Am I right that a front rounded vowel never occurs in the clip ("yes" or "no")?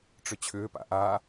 no